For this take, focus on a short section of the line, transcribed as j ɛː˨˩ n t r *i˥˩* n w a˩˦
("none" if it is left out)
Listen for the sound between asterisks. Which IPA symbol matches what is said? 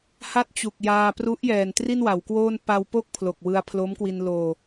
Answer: i˥˩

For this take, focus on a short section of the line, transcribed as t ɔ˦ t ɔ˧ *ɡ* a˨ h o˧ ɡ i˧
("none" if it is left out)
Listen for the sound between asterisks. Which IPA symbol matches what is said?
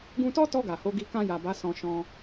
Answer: ɡ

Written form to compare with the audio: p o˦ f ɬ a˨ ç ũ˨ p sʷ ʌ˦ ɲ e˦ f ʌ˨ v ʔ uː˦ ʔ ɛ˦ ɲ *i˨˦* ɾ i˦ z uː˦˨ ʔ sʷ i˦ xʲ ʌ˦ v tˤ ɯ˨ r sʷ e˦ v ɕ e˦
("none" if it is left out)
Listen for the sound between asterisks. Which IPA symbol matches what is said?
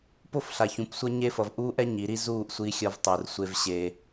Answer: i˨˦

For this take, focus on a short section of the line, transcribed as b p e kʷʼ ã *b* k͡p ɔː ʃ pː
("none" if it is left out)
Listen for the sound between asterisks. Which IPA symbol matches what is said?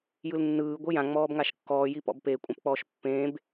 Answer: p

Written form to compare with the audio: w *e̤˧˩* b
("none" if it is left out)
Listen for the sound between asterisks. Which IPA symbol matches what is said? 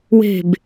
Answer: e̤˧˩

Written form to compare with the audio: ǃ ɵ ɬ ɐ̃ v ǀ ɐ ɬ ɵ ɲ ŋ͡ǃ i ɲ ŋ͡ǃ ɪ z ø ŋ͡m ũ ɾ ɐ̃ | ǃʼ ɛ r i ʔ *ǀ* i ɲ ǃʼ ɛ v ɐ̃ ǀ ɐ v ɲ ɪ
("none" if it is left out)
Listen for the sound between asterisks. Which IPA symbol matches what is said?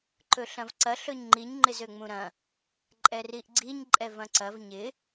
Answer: ɡ͡ǀ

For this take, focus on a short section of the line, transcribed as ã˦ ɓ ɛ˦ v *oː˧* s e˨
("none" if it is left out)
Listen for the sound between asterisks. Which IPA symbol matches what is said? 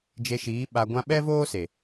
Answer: oː˦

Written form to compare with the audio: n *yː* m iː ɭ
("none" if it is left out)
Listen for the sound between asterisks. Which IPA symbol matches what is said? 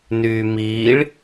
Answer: yː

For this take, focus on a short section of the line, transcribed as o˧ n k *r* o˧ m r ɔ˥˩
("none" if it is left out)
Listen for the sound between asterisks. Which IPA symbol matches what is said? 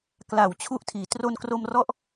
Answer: r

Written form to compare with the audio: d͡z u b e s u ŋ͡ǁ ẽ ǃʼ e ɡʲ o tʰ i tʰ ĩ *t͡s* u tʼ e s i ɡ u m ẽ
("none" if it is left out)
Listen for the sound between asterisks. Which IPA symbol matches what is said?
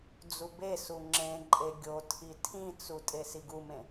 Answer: t͡s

